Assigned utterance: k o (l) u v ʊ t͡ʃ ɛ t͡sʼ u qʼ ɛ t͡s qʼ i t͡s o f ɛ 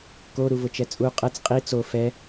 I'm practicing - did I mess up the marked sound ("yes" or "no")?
yes